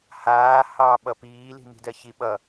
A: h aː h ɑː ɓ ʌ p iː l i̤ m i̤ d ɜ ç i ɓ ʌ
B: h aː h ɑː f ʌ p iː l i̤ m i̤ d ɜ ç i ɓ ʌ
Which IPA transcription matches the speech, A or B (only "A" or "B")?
A